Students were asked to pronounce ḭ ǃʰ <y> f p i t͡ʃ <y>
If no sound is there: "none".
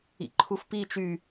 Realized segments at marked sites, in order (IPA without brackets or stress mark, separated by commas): u, y